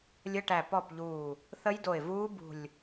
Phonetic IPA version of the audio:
lʲ ə˧˥˧ ʈ æ˧˩ p ɔ˥˩ p ʎ uː˧˩ | θ ə˦˥ j d o˧˩ ɪ̯ v uː˦˥ b ṳ˧˩ lʲ

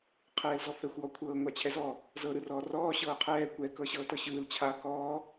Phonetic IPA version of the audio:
qʰ ɛː l z ɔ f ɛ xʷ w ɔ kʷʰ ɤː ŋʷ a t͡ɕʰ ɛ z ɔ | z ɤ ɾ ɯ r ɔː r ɔː ɕ ɤː qʰ ɛː kʷ ɛ k ɤ ɕ ɤː t ɤ ɕ ɯː l t͡ɕʰ a k ɔː

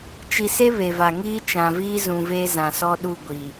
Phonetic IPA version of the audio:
t͡ʃ i˨ s e˦ β e˨ v a˨ ŋ iː˦ t͡ʃ ã˨ v iː˦ z ũ˨ v e˦ z ã˨ s ɔ˦ ɗ u˦˨ ɡʷ i˨

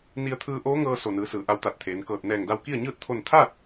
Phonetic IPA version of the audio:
n i˧ ə̯ t̪ʰ ɯː˧ ʔ oː˧˥ ŋ ɤː˧ s o˧˩ n ɯː˩˧ s ɯː˩ ʔ a˧ w t̪ a˧˩ t̚ t̪ʰ eː˩˧ n k ɤː˧˩ t̚ n ɛː˧˩ ŋ d a˧ w k i˥˨ ə̯ ɲ ɯː˥˨ t̚ t̪ʰ o˥˨ n t̪ʰ a˥˨ t̚

